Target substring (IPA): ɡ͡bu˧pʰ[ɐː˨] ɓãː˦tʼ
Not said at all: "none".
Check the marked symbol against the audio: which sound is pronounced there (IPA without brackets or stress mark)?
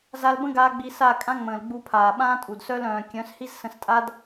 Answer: aː˨